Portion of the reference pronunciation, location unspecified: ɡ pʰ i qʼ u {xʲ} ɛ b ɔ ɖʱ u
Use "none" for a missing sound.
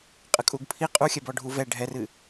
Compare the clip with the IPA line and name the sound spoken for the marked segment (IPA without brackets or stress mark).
xʲ